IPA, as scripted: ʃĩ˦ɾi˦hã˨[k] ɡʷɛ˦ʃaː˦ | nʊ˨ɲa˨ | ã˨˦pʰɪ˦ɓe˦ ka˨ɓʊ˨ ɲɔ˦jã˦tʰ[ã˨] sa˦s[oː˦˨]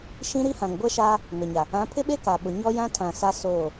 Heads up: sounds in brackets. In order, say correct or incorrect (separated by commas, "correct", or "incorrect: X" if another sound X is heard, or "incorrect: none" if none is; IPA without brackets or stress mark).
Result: incorrect: ŋ, correct, correct